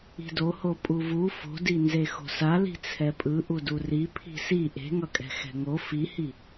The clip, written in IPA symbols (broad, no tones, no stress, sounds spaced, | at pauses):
i̤ d o h o pʼ u v u f o̤ d i n z e x o̤ s a l i̤ t͡sʰ ɛ pʼ ɯ ʔ u d u r i pʰ i̤ s i ʔ e̤ ŋ ʌ kʼ ɛ̤ x ɛ̤ ŋ o f i h i